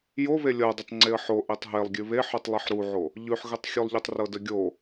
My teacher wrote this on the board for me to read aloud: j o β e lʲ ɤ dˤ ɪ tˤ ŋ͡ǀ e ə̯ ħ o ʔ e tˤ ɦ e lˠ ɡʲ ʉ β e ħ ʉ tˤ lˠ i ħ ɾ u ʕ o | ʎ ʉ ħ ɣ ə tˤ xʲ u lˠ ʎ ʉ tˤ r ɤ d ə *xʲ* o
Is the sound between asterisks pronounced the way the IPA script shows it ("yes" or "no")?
no